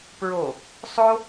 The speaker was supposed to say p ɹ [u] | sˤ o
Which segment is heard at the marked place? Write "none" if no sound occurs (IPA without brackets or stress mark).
o